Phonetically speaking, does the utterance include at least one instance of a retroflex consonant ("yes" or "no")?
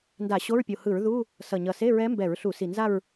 no